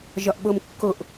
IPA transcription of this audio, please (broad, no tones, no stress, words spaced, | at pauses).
ʒɒʔɓomkːoʔ